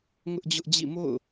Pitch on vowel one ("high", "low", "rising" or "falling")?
high